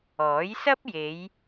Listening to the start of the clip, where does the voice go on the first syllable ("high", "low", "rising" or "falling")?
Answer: rising